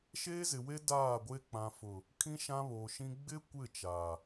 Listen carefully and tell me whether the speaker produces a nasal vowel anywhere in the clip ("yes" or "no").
yes